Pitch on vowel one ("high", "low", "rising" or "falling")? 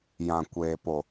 low